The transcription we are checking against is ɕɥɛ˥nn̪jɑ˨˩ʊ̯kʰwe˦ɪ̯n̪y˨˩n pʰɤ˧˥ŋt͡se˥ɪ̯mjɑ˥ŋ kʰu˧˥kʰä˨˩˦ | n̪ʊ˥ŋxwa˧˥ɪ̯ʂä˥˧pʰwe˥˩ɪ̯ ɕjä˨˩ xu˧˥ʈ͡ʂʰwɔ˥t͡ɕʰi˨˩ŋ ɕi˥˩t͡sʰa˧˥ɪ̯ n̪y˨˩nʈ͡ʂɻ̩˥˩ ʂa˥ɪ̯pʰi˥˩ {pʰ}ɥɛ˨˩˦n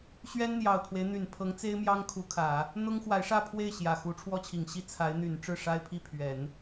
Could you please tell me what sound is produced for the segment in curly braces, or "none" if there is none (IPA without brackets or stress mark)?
pʰ